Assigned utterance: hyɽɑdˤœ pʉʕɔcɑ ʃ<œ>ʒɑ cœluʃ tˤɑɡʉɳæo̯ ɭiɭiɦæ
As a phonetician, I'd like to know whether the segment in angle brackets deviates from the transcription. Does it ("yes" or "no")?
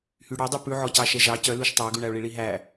yes